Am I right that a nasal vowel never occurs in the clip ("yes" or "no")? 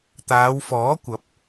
yes